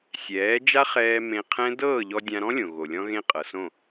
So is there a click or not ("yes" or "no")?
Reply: no